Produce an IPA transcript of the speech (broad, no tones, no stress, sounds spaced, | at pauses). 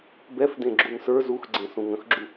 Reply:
b ɛ f d ẽ ɡ͡ǁ u n s ə˞ z u x ɡ͡ǀ ẽ s ũ ŋ ə̃ x ɡ͡ǁ u